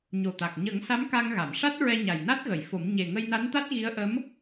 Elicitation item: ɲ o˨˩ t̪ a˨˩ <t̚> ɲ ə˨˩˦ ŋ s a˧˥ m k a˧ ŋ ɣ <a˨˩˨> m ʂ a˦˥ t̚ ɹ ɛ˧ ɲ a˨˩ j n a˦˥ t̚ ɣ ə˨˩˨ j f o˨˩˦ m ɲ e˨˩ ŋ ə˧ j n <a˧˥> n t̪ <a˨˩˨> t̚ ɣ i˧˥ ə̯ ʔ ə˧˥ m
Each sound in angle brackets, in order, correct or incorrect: incorrect: k̚, correct, correct, incorrect: a˦˥

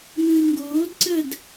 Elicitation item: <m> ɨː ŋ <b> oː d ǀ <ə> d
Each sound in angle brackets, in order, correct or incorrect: correct, incorrect: ɡ, correct

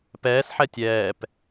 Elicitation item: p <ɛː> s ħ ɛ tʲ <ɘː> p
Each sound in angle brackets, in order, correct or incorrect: correct, incorrect: ɛː

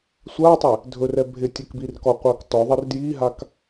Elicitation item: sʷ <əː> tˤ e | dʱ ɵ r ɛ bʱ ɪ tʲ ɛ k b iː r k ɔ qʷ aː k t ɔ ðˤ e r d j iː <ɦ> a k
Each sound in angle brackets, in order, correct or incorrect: incorrect: aː, correct

